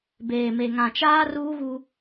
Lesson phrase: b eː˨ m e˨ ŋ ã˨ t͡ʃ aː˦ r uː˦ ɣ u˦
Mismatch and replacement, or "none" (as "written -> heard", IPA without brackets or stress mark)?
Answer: none